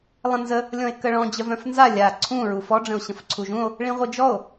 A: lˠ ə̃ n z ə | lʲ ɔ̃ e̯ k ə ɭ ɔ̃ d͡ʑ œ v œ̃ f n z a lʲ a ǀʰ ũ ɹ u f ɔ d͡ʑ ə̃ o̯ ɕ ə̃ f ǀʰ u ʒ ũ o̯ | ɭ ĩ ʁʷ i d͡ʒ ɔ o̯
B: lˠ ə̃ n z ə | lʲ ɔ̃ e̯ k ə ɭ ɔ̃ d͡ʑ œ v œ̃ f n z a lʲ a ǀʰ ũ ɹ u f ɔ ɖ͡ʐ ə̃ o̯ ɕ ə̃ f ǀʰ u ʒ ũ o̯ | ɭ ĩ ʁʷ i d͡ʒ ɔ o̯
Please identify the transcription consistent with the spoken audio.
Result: B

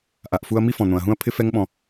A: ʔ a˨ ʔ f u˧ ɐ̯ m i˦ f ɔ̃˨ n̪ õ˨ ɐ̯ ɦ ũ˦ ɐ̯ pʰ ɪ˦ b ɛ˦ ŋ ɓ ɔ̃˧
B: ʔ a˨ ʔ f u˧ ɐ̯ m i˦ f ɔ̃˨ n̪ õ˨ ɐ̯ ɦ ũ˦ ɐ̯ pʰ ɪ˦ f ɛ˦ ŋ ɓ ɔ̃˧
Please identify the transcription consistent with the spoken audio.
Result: B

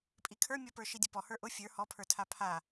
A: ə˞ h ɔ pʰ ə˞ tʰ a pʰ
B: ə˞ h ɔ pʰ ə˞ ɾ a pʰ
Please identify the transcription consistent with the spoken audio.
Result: A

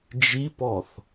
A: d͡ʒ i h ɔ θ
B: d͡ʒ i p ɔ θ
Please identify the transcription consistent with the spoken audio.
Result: B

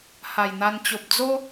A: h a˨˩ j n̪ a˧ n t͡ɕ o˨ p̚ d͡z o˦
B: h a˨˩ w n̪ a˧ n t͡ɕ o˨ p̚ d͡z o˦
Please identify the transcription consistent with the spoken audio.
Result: A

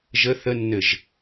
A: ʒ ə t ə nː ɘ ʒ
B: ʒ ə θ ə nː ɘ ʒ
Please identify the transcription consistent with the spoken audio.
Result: B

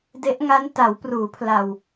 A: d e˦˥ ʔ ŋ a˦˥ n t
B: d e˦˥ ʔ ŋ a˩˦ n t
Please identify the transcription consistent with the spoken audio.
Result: A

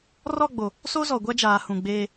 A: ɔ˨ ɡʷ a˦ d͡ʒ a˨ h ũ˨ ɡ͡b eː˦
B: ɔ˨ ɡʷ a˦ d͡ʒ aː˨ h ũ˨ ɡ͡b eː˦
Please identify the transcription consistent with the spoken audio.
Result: B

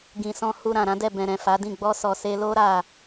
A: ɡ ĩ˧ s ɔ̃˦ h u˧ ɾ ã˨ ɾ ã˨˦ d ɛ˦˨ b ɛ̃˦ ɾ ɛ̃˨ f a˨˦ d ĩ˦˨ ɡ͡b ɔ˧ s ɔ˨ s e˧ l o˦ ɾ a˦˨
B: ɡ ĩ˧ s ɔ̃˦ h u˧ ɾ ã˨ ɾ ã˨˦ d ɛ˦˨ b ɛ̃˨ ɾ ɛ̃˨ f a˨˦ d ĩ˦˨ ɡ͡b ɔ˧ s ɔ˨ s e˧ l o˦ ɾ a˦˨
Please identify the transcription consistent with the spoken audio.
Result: B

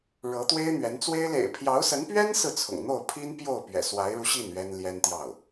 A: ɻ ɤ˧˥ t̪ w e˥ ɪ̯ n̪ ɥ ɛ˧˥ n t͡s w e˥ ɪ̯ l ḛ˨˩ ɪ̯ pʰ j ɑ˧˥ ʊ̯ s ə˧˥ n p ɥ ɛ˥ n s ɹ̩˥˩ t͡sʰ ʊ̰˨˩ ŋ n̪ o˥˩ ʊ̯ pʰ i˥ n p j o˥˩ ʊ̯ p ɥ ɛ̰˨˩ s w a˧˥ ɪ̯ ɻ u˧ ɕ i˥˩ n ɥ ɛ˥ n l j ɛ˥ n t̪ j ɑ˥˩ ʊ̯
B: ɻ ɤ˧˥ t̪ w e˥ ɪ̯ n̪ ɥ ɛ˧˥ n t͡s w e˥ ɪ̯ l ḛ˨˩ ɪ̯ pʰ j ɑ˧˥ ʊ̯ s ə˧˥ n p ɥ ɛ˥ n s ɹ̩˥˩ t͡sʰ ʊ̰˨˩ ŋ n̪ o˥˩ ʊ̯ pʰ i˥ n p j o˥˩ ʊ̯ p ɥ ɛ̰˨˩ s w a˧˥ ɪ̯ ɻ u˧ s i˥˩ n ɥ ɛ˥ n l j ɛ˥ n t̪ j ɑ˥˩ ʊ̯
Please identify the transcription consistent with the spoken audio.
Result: A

